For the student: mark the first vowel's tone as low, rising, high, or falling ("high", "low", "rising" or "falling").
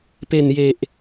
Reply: low